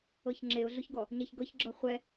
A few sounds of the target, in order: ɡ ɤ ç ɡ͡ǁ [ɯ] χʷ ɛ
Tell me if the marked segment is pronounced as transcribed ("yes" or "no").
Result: no